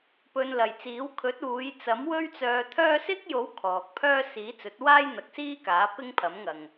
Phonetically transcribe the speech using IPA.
pɵ˧nlɐ˨jt͡siː˨˥w kʰɵ˨˥t̚uː˨˧j t͡sɐ˨˥mwɵ˥ɥt͡sœː˧t̪ʰœː˥ sɪ˥k̚jo˨˥w kʰɔː˨k̚pʰœː˥ siː˨˥t͡sɵ˨˥t̚waː˥j n̪ɐ˨˥k̚siː˥kaː˨˥ pɪ˥ŋpʰɐ˨˥mŋɐ˨ŋ

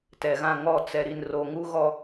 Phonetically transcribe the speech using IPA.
tɛ˨ɣã˦˨ŋɔ˦˨ t͡sɛ˨ ɾi˨nro˨ŋu˦ɣɔ˦

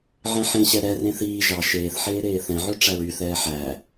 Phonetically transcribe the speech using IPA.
ʕɛ̃ħẽɕɛ ɾɛ rẽθiː ʒɑ ʃeːθħeː ɾeːθɛ̃ʕø ʈ͡ʂæɹyθɛː ħæ

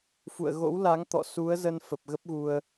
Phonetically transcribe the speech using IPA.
fṵ˧˨ə̯ɣo̰˧˥w la˨˦ŋt̪ɔ̰˧˨ su˨˦ə̯ zə˧nfə˨˩p̚ ɣə˦˥p̚ɣu˧ə̯

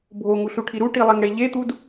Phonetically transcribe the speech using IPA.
bʱoŋuɬuʈʰi ɾuʈilˠɛŋɽe ʎet̪ud

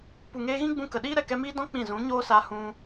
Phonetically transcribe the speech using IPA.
pu˨ŋeː˧ɣĩ˦ɡ͡bũ˧ kə˨ɗiː˦ ɾɛ˨kɛ˧miː˦dɔ̃˦ k͡pĩ˦˨ zũ˨˦ɲoː˦sa˧ hũ˧

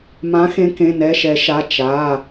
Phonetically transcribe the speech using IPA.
mã˨˥xẽ˨˥ kẽ˩˧˩nɛ˩˧˩ʃɛ˨˩˦ʃa˩˧˩ t͡ʃa˩˧˩

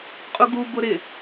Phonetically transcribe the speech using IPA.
qʼuɡubʊ ɾɪ

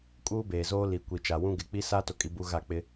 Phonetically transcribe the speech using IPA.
kʼuː˦ beː˨zoː˦ li˨kʷi˨t͡ʃa˨wũ˦ ɡɪ˨k͡pi˦sa˦ to˨kʼi˨bu˨ ɣa˦˨k͡pɪ˦

